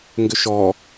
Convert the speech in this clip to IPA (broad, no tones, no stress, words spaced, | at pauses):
ŋɡʏʃɔ